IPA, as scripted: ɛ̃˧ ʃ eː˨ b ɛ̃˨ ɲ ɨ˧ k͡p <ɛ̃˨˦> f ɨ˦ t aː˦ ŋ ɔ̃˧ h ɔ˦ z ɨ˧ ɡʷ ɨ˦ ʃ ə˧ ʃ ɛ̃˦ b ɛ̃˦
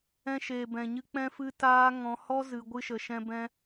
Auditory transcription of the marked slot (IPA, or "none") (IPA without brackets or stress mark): ɛ̃˦